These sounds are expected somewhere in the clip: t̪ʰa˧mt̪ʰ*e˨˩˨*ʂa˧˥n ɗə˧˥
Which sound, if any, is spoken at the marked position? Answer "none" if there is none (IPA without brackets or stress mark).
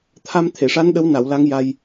e˨˩˨